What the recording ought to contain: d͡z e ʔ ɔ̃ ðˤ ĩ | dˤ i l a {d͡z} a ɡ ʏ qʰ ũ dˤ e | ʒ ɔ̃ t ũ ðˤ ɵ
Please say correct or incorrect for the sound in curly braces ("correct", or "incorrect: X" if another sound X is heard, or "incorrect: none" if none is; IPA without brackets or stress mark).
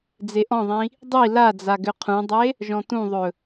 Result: correct